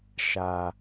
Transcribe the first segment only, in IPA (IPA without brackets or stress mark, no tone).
ʃ